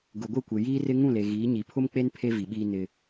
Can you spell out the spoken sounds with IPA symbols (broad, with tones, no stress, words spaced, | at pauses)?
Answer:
ɡʊ˨ɡʷɪ˦˨kʷe˨ jiː˦rɪ˦ ŋũ˦˨le˨ɣiː˨˦ ɲi˨pʰʊ˦mk͡pe˦n pʰe˦vi˨ɓiː˦ nɪ˦